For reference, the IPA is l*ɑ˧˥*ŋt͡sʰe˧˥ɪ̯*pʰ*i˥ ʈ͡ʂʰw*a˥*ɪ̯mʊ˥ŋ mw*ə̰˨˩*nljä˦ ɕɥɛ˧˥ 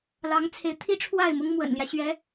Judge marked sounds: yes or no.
yes, no, no, yes

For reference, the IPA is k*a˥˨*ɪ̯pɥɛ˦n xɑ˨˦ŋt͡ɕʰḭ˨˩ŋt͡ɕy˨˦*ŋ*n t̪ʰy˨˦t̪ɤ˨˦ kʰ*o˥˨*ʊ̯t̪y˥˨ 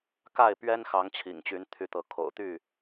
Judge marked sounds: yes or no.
yes, no, no

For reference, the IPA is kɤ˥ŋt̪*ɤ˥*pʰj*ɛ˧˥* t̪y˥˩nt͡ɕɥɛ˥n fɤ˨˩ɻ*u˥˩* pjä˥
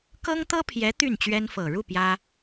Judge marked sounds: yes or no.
yes, yes, yes

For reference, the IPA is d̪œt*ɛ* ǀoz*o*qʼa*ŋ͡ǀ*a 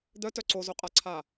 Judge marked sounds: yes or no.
no, yes, no

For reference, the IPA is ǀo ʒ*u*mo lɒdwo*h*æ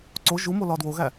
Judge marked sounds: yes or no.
yes, no

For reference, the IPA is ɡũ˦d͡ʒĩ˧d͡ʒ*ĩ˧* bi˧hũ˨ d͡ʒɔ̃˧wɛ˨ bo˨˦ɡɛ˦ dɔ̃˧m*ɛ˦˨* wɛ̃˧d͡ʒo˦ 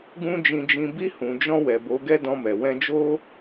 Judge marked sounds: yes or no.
yes, no

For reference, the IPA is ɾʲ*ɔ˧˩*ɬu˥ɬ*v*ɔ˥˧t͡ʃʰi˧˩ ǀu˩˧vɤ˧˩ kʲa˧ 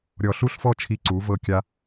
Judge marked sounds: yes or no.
yes, no

